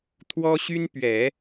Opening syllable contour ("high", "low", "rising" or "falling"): high